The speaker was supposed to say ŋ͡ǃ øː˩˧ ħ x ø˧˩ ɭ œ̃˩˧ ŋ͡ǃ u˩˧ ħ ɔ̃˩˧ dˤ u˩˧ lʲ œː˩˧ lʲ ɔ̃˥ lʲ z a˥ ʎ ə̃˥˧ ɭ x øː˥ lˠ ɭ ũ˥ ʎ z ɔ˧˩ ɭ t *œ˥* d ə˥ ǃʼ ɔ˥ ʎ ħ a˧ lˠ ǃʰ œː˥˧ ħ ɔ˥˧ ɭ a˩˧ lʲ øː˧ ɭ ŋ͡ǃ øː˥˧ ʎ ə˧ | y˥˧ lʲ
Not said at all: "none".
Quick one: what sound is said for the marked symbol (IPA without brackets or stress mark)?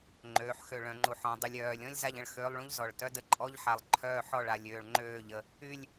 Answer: œ˥